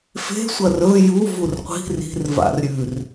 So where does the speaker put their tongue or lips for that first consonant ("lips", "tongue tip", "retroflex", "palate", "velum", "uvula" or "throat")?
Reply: lips